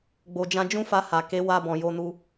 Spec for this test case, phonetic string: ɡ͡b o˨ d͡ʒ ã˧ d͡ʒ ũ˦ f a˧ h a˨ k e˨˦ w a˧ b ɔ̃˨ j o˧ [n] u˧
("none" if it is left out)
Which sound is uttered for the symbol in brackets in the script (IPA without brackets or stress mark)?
n